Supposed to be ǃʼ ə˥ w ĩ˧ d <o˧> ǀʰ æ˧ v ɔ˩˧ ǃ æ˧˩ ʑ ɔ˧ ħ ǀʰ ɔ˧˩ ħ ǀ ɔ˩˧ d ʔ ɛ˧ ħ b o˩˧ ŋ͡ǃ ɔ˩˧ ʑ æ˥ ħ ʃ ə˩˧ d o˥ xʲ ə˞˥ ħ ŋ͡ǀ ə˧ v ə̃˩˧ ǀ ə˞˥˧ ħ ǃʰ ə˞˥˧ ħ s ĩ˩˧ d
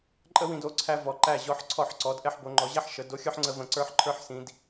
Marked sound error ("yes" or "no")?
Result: no